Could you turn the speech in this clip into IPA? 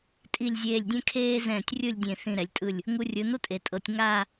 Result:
tʼ i˧˩ lʲ zʲ eː˧˩ lʲ dʲ ɛ̃˥ kʰ eː˥ z ɛ̃ː˧˩ tʲ rʲ ɯ˥˧ lʲ dʲ ẽ˧˩ θ ĩ˧˩ ɾ ɛ˩˧ lʲ tʼ ɯ˧˩ lʲ | ŋ u˧ rʲ ɯ˩˧ n o˥ tʼ e˩˧ tʼ ɤ˩˧ tʲ ŋ a˥˧

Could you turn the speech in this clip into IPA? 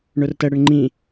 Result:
ɳ ʊ r t ə ɽ ə ɳ ŋ͡ǃ ĩ

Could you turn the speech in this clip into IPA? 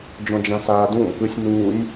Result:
d͡ʒ ɔ̃ d͡ʒ ã s aː d ũ | ɯ sʲ n uː nʲ

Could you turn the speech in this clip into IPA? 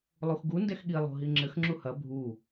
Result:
lˠ u x ɡ u n d ɛ x ɠ i lˠ o̤ ɦ i ŋ͡ǁ ɘ x ŋ͡ǁ u h ɐ bʱ u

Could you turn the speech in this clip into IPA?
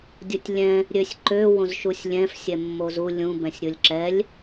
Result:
dʲ o tʲ lʲ ɛ̃ | ɾʲ ø sʲ ǃ ø w õ z ʃ u sʲ lʲ ɛ̃ f sʲ ɛ mː o z u lʲ ũ b ɛ̃ sʲ ɾʲ o lʲ ǁ ɛ lʲ

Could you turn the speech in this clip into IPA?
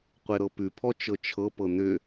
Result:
qʷ e ɾ ɤ p ʉ pʰ ɔ t͡ʃ ɤ t͡ʃʰ ɤ p ɤ n ʏ

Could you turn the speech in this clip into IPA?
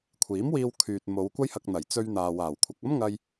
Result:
kʷʰ iː˨˥ m w iː˧ w kʰ yː˨ t̚ m o˨˧ w kʷ ɐ˥ j h ɐ˧ k̚ n̪ ɐ˨˩ j t͡s ɵ˧ ɥ n̪ aː˨ w aː˨˩ w kʷʰ ɐ˨ k̚ ɐ˥ m ŋ ɐ˧ j

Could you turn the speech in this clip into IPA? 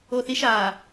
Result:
o θ i ʃ aː

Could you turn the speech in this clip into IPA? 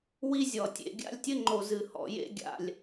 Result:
w i˦ zʲ ɔ˨ tʲ ḛ˨ ɡʲ a̰˦ lʲ tʲ ɘ˦ ŋ͡ǃ o˨ z ɨ˨ h ɔ̰˨ j ḛ˦ ɡʲ a̰˨ lʲ

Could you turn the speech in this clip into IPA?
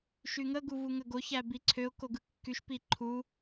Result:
ʃ y ŋ ə ɡ u v u ŋ ə ɡ o ç æ b i ǀʰ ø ʊ̯ k o ɡ ɯ kː y ʃ p i ǃʰ u

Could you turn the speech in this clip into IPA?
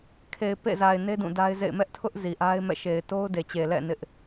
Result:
kʰ e˨ ɪ̯ p ḛ˦˨ z a˨ ɪ̯ n e˦ d ũ˦˨ d a˦ ɪ̯ z ḛ˦˨ ɪ̯ m ɛ˦ ʔ tʰ ʊ˦ ʔ z i˨ ʔ a˦ ɪ̯ m ɛ̰˦˨ ʃ e˨ ɪ̯ t o˦ ʊ̯ d e˨ t͡ɕ e˨ l ɛ̰˦˨ n ɪ˦ ʔ

